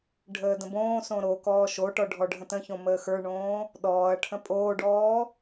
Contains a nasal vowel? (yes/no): yes